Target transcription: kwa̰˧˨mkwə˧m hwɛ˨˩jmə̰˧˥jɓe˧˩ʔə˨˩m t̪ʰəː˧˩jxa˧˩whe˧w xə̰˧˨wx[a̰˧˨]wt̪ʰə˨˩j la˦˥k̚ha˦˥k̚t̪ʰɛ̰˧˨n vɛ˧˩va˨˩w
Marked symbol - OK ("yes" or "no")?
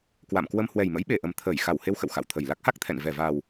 yes